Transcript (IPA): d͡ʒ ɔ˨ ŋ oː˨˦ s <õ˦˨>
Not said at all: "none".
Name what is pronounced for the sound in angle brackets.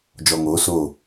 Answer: o˦˨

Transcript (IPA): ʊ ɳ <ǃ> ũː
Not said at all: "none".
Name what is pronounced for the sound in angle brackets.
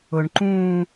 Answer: ǃ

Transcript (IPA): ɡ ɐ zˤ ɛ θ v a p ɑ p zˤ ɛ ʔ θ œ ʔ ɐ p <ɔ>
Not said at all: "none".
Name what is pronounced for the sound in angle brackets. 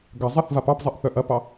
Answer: ɑ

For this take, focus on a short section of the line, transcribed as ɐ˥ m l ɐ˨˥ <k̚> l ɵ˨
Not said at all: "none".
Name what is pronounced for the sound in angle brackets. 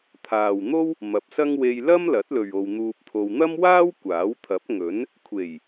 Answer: t̚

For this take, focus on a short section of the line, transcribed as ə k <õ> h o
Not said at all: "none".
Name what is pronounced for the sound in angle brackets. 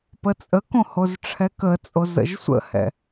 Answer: õ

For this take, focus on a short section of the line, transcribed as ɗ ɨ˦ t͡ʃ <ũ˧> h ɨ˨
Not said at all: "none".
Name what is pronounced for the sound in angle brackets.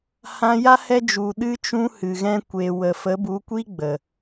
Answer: ũ˧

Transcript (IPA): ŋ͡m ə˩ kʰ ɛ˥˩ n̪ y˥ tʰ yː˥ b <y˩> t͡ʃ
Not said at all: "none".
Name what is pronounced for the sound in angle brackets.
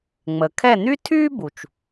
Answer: u˩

